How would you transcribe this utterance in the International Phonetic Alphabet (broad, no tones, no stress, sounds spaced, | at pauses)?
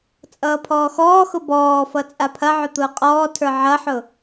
t͡sʼ ʌː pʰ ɔː x ɔː x ʊ b ɔː f ʌ t͡sʼ a pʰ ɐ ʕ ʊ t̪ ʊː qʼ ɔː tʰ ə˞ ʕ ɐ ħ ʊ